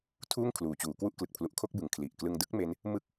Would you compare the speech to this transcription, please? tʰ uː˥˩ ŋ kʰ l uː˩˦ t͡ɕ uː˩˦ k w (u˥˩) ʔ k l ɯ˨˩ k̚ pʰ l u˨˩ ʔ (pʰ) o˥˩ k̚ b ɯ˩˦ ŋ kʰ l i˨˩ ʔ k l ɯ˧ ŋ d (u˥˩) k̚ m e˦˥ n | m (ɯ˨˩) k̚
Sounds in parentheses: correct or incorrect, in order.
correct, incorrect: kʰ, incorrect: ɯ˥˩, incorrect: ɯ˥˩

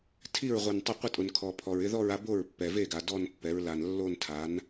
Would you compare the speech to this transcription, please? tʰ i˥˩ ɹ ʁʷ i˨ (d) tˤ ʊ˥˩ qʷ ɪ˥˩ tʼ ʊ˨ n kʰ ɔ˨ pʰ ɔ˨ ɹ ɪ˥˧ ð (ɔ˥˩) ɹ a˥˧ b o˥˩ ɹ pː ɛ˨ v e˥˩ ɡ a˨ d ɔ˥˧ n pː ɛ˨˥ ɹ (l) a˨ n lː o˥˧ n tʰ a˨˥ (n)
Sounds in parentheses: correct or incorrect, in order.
incorrect: n, incorrect: ɔ˥˧, correct, correct

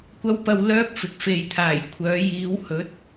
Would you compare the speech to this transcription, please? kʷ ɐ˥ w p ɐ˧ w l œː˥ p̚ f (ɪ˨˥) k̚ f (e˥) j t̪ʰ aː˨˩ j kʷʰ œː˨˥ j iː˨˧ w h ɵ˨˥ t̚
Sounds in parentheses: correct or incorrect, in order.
incorrect: ɪ˨, incorrect: e˨

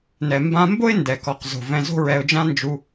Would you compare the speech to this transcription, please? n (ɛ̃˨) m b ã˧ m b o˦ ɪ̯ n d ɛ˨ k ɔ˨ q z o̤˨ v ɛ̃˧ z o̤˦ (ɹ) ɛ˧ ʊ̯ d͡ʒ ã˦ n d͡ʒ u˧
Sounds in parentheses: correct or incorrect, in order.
incorrect: ɛ˨, correct

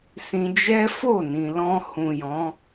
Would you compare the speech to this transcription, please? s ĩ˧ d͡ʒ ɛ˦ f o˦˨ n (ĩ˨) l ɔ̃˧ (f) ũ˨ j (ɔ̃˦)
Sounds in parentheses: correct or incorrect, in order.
correct, incorrect: h, incorrect: ɔ̃˨˦

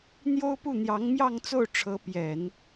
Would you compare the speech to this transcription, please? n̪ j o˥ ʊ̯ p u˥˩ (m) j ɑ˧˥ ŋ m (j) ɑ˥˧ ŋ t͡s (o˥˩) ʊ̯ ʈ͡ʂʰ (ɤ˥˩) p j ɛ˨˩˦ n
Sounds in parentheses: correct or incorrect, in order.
incorrect: n̪, correct, correct, incorrect: ɤ˧˥

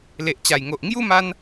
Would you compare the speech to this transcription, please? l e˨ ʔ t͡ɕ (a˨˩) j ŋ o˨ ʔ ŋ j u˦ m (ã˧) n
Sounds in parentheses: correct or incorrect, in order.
correct, incorrect: a˧

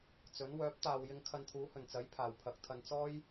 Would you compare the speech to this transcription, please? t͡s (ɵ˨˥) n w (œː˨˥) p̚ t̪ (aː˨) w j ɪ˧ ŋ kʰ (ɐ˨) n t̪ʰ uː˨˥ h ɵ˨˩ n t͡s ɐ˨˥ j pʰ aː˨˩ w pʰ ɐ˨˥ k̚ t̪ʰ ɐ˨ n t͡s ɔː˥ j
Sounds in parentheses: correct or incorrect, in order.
correct, correct, correct, incorrect: ɐ˧

